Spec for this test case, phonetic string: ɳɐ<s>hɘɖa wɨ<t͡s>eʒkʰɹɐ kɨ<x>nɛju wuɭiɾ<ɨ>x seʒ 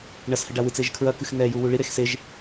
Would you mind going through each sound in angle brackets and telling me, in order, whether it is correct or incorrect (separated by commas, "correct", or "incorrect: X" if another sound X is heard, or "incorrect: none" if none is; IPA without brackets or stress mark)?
correct, correct, correct, incorrect: e